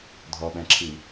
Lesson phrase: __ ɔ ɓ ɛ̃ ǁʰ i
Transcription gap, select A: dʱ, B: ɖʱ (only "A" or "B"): A